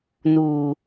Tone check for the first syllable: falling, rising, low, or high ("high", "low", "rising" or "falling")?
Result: low